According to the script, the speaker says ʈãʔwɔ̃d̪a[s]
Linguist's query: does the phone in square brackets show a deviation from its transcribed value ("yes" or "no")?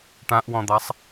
yes